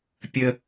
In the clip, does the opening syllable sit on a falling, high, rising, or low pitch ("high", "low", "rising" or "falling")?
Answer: high